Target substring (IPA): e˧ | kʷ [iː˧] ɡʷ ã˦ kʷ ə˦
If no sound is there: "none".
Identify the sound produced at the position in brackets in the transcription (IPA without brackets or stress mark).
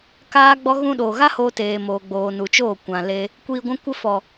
iː˧